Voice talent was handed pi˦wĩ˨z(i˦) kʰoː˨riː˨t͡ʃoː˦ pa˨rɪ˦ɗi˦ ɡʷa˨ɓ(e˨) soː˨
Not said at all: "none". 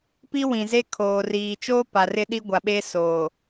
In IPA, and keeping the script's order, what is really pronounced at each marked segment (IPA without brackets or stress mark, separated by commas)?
e˦, e˦